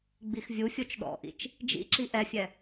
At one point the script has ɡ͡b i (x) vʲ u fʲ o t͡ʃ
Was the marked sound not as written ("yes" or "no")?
no